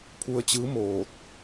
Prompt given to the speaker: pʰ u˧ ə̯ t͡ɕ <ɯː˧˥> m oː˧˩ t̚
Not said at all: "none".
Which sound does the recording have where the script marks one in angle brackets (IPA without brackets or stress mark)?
ɯː˧˥